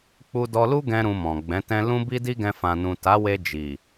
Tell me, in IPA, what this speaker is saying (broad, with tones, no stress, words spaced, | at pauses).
k͡pu˧dɔ˧lu˦ ɡɛ̃˦ɾũ˧mɔ̃˨ ɡ͡bɛ̃˨˦tɛ̃˦ lũ˦bi˦ di˦ɡɛ̃˧ fã˨nũ˨ta˨˦we˧ d͡ʒi˨